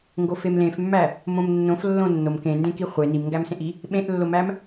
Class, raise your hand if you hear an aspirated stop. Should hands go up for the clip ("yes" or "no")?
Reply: no